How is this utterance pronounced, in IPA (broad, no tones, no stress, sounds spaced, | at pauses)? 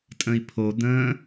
tʼ ə̃ i̯ pʰ o d̪ ə̃ː